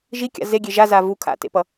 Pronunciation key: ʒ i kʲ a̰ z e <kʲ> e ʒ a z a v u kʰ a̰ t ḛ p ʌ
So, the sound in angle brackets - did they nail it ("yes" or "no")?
no